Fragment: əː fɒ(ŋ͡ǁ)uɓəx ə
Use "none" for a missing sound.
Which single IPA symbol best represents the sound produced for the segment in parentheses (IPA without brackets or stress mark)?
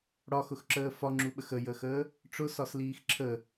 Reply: ŋ͡ǁ